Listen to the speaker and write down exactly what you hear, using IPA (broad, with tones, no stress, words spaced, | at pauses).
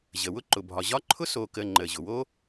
ʑə˩ wʊ˦ǃʊ˩bʱɒ˩ ʑɒ˥ ǃʰʊ˥so˨ kə˨ ŋ͡ǃə˩ʑʊ˩wo˥